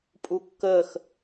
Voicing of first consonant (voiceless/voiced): voiceless